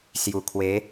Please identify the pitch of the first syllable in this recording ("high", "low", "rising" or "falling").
low